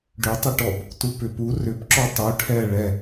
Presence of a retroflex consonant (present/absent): present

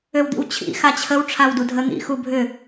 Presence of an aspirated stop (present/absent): present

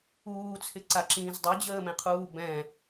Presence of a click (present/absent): present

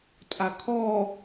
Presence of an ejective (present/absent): present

